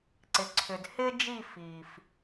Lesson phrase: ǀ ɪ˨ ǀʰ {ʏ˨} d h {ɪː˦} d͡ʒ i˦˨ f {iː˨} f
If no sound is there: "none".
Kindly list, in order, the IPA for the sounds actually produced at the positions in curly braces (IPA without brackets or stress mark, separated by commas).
ʏ˨, ɪː˦, iː˨